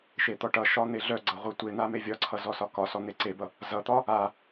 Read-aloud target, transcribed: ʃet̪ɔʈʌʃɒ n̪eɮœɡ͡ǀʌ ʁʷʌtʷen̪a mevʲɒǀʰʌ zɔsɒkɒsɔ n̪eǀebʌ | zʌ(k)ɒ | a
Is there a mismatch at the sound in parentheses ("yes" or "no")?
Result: yes